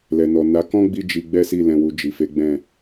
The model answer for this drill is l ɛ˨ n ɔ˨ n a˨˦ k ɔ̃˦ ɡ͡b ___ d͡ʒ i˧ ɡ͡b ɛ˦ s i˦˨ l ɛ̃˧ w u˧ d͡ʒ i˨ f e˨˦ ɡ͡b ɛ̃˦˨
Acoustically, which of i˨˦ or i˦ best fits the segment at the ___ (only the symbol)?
i˦